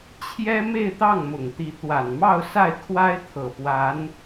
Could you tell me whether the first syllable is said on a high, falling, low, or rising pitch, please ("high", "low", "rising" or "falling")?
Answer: high